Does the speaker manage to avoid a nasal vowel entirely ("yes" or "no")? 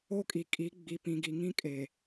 no